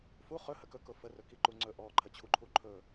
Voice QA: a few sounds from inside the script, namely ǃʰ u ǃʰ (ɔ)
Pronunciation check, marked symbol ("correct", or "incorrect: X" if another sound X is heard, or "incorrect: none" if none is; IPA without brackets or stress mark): incorrect: ɵ